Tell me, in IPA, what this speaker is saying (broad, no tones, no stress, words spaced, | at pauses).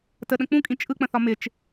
təɗə̃ k͡pũkʼĩ t͡ʃʼɯk͡pə̃θɒ mɪt͡ʃ